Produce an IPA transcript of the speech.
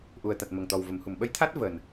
ʔu˨˩ə̯t̪a˨˩t̚ mə˨˩ŋ t̪ɔ˨˩wvə˨˩˨mhu˨˩˨m ɓə˧˥jt̪ʰa˦˥t̚ vəː˨˩n

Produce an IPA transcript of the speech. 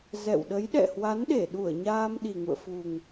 zɛ̰˧˨wɗə˨˦j ɗɛ̰˧˨hwa˨˦nɗe˧˩ɗu˧˩ə̯ ɲaː˧m ɗi˨˩ŋṵ˧˨ə̯fu˨˩ŋ

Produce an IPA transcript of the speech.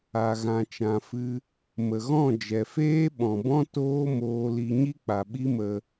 a˧ɣã˧t͡ʃã˧fɨ˦ | mə˨ɣɔ̃˦˨ d͡ʒɛ˨feː˦ɓɔ̃˨bɔ̃˦ toː˦moː˧li˧ ɲi˦k͡pa˨ɓi˦mə˧

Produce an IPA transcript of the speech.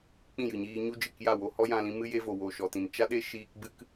k͡pĩ˦˨jɨ˨ɲiː˧ɲu˦ d͡ʒɨ˦˨kja˦˨ wo˧hɔ˦jã˧lĩ˧ mɨ˦je˦vo˨ wo˨ʃɔ˨tĩ˨n t͡ʃa˦ɗe˦ ʃiː˧k ɡ͡bɨ˦k

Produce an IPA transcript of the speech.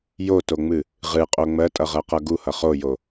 jotoŋ͡mɨ | ʁɨqʼo ŋ͡mɜtʼʌʁɜqʌ ɡuhʌ χojo

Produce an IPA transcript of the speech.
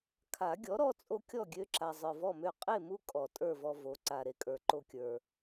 kʰa˨˩˦ɡʲɔ˩˥ɾɔ˦ t͡sʼo˦kʲɔ˥˨ɡʲø˦ǁa˨ zˤə˞˨vɔ˥˨mø˥˨ qʼe˥˨mu˦ kʼɔ˨˩˦tʼə˞˥˨vɔ˦ vo˩˥ǀa˨ ɾe˨kʼə˞˨ ǃo˦kʲə˞˨

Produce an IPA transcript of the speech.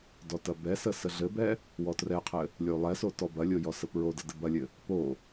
dɔtɐbɛsə səɮɘbɛ | wɔtrɛqʰɘ | lʲolˠɛso tɔbɐlʲo jɔsəpɹodə dɘbɐlʲɘ | po

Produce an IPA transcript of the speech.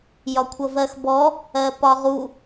jɒkʷʰʌvɜxbɔ | ɜpɒʁu

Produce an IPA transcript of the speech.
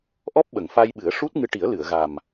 ʔɔ˦˥p̚ɓə˨˩˨ŋfa˧jɓɨ˨˩˦ə̯ ʂu˦˥t̚ŋɨ˧ʈi˨˩˦ə̯ lɨ˨˩˨ə̯ɣa˨˩m

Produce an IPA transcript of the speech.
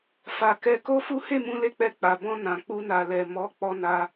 fa˨ kɛ˧ko˦fu˦ he˦˨mũ˧le˧k͡pɛ˧ k͡pa˨bɔ̃˧ nã˨k͡pu˧na˨lɛ˨ mɔ˨˦ k͡pɔ˧na˧

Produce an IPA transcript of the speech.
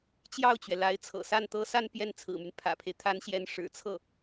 t͡ɕjɑ˥˩ʊ̯t͡ɕɥɛ˩la˧˥ɪ̯t͡sʰɤ̰˨˩ sa˥˩nt̪ɤ˥sa˥˧n pjɛ˥˩nt͡sʰɹ̩˨˩my˦n pʰä̰˨˩pʰe˦ɪ̯ t̪ʰa˧˥nɕjɛ˧˥n ʂɻ̩˨˩t͡sʰɤ˥˩

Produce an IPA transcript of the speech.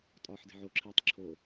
tʼɒːħde̤ʕoǁʰiːtˤ ǁʰo

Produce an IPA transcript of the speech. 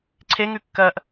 ǀʰeŋʉ kːɜʔ

